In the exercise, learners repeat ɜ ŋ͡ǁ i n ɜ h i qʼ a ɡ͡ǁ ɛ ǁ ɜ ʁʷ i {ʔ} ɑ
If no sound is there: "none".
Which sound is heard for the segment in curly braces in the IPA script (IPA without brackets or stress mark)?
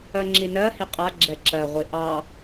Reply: ʔ